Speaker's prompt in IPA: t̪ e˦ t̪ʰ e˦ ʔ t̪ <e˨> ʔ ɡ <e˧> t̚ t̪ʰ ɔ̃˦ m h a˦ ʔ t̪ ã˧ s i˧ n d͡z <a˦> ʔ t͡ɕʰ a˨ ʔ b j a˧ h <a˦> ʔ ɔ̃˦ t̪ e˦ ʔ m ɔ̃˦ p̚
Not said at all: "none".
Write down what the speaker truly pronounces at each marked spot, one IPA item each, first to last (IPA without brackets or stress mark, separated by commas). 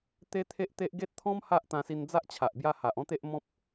e˦, e˦, a˦, a˨